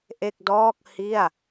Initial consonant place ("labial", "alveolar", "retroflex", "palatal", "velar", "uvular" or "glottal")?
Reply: glottal